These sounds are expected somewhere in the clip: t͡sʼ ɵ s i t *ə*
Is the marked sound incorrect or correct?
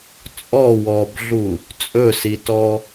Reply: incorrect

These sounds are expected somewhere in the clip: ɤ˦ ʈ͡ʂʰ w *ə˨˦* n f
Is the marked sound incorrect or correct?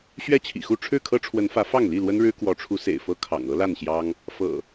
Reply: correct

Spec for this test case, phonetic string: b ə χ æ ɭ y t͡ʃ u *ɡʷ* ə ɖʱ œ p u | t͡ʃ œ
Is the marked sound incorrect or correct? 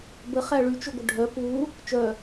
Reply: correct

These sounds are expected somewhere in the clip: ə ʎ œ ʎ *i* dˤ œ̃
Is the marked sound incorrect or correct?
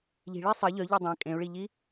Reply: correct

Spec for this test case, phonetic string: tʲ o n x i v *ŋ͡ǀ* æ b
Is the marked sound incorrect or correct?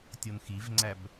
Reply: correct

